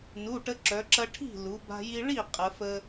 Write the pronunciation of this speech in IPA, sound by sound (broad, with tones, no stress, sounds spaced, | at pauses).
n u˩˧˩ ʈ ə˧ ǁ œ˩˧ ǁ ɐ˧ ʈʰ i̤˥˩ l u˩˧ b a̤˧ j i˧ ɭ i˥˩ qʼ ə˩˧ f ə˧